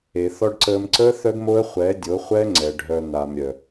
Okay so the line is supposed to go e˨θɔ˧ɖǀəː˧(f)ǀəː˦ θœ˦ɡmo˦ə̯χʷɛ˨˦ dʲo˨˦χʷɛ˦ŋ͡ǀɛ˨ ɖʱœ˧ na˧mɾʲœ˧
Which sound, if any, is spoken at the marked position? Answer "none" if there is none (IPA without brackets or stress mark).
m